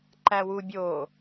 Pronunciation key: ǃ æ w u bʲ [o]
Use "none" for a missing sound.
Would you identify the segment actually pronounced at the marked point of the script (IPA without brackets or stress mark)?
o